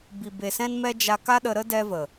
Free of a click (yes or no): yes